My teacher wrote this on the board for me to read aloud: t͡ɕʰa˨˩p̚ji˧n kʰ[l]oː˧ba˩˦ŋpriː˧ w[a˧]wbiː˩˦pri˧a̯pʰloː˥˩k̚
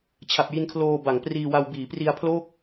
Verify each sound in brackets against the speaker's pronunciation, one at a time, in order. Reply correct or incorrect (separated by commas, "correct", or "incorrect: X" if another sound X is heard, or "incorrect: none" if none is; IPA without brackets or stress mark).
correct, correct